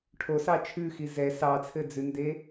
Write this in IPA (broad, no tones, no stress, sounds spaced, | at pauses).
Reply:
ʈʰ o s ɑ t͡ʃʰ ʉ x i z ɛ s ɑ t͡sʰ ɘ d͡z ʉ n d e